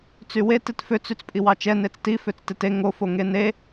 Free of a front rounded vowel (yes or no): no